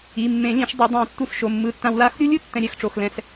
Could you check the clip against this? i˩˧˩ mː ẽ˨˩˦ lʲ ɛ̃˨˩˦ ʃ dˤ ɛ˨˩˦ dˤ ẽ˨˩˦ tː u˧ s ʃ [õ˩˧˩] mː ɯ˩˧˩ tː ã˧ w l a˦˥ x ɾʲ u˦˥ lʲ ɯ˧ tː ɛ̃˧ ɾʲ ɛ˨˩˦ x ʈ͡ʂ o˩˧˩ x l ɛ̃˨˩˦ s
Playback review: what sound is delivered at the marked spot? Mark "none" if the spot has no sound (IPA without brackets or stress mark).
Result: o˩˧˩